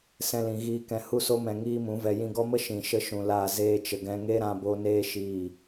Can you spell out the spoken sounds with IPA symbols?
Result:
sɛ̃˧lĩ˨ɣiː˧ kɛ̃˨hu˧so˧mɛ̃˨ ŋiː˦mũ˨˦vɛ˧ jĩ˧ɡɔ˦mə˦ ʃĩ˨ʃə˦ʃũ˨la˦˨ zeː˧t͡ʃə˨ɡɛ̃˧ŋe˦ ɾã˧bo˧ neː˦ ʃiː˦˨

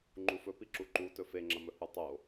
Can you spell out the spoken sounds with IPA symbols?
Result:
ŋ͡ǃufɵ piǁuǃu tɵfeŋ͡ǁɐmɵ hutˤo

